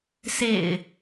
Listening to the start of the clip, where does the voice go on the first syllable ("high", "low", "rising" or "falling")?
low